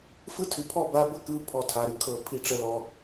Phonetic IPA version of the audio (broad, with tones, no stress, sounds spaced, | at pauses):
f ɯ˦ tʰ ʉ˨ pʰ ɔ˦˨ b a˧ b ə˦ k ɯ˧ pʰ ɔ˧ tʰ a˨ ɾ ʉ˧ kʰ ɤ˨ pʰ i˨ ʈ͡ʂ ə˨ l ɔ˨